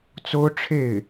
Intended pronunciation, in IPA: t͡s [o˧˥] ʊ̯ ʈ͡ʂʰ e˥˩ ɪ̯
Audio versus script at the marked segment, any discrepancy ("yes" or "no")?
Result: yes